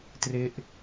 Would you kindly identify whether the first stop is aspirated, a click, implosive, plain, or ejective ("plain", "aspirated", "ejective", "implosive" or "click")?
plain